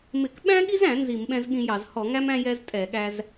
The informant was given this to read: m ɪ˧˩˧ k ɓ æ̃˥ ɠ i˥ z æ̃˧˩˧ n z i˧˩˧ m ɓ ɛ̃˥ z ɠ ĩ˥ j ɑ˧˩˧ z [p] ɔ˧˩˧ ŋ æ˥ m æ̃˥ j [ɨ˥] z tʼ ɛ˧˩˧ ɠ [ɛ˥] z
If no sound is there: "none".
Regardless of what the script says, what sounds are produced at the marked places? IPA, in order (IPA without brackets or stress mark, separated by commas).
h, ɛ˥, æ˥